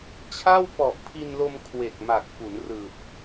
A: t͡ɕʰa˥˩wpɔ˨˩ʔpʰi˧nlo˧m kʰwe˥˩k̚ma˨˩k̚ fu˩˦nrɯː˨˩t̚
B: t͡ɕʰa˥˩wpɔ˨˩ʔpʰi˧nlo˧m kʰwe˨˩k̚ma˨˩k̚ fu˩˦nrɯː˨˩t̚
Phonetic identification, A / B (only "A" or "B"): B